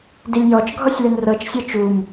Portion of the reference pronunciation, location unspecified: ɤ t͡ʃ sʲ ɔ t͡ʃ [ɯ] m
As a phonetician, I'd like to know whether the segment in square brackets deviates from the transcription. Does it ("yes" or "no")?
yes